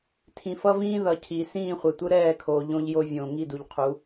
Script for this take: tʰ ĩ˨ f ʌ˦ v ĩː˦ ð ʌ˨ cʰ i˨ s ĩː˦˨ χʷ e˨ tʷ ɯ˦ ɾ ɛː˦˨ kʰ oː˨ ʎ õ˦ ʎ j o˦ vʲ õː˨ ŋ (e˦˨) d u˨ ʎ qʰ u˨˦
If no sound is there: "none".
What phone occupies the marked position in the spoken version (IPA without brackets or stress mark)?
i˦˨